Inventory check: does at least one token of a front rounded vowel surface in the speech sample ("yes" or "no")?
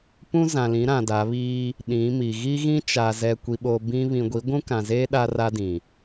no